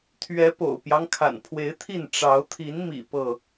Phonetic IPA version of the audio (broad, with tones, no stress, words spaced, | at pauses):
t̪ʰɥɛ˨˦po̰˨˩ʊ̯pjɑ˦ŋ kʰa̰˨˩npʰwe˨˦ɪ̯t̪ʰi˥˨n ʈ͡ʂɑ˨˦ʊ̯ t̪ʰi˨˦nmḭ˨˩ pɤ˥˨